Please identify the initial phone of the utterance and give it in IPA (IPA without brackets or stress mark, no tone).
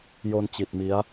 j